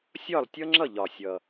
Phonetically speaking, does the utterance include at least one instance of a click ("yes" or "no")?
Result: yes